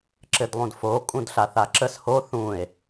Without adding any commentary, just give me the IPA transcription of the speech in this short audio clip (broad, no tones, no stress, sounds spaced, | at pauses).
ǁ ɘ d lˠ ũ d f o kʼ ũ d ɬ a θ a ǁ ə s h o θ ũ e̯